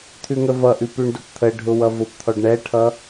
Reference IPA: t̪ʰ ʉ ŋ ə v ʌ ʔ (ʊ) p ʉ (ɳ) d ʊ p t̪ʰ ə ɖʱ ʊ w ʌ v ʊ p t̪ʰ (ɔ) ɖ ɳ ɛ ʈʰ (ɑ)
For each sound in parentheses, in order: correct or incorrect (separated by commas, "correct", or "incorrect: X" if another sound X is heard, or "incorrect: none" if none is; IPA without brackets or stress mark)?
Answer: incorrect: ʉ, correct, correct, incorrect: ʌ